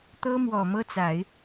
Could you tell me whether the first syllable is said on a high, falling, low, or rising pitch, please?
high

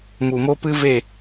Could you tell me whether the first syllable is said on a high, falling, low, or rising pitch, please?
low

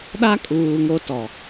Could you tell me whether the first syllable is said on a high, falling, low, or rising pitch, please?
high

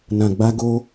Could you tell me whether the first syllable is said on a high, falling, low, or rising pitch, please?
low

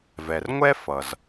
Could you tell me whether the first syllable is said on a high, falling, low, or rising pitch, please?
low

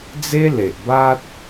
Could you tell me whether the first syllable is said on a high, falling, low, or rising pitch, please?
high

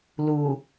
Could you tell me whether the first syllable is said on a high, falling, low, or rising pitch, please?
low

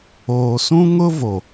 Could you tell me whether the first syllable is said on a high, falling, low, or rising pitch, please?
low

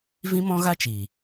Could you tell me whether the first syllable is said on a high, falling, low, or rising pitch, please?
high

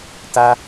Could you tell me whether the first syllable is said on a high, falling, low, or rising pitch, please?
high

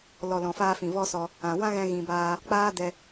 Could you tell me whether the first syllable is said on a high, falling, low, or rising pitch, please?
low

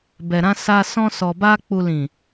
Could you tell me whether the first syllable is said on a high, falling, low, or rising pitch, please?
low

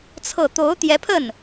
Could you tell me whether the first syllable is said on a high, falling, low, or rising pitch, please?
falling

